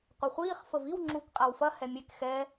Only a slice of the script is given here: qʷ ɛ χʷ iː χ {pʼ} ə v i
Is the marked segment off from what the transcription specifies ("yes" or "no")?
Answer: yes